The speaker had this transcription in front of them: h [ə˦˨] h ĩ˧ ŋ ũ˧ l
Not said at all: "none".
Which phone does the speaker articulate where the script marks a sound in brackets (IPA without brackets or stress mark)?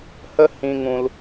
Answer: ə˦